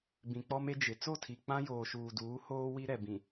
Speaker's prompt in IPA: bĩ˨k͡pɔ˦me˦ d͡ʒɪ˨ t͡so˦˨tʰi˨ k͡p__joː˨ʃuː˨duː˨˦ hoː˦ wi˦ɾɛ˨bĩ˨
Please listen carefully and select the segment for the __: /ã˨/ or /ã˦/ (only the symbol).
ã˦